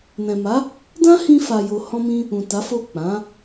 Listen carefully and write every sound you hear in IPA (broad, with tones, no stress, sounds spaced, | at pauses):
n ɛ̃˨ m a˨˦ | d ã˦ h ĩ˧ f a˨ j o˨ h ɔ̃˧ m ĩ˧ | ũ˨ t a˨˦ f o˦˨ k͡p ã˨˦